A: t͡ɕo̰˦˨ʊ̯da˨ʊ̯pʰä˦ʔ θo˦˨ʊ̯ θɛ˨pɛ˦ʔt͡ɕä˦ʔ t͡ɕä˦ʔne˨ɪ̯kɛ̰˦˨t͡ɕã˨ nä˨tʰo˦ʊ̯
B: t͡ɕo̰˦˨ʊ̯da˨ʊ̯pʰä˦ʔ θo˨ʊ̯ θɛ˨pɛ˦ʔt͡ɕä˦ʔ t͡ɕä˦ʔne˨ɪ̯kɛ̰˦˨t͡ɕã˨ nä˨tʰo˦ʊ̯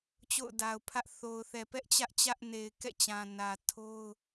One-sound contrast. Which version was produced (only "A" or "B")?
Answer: B